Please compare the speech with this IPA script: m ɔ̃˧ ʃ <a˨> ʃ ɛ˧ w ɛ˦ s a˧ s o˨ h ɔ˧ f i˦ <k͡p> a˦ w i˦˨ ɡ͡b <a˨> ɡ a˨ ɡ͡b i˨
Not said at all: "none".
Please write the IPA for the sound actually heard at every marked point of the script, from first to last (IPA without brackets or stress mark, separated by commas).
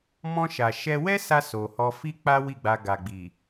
a˨, k͡p, a˧